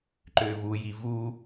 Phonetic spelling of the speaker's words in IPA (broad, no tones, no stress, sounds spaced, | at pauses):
ǃ ʏː v u j i v u